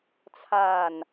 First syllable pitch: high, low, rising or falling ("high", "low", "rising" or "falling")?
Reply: low